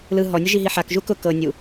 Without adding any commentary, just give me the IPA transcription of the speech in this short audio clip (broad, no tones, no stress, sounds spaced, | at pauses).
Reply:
l ɯ ɦ ɔ nʲ ʊ ʒ i ɦ i ħ a k ʒ u k ʊ k ɤ nʲ u